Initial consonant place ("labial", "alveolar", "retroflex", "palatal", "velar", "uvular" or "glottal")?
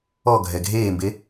velar